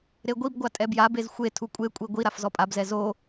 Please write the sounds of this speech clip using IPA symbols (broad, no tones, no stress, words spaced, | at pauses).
ɾeɡʷibɡʷa tʼɛbjabez xʷe tʰukʷʼekʷʼi ɡʷi ɾafzɔpʼabzɛ zo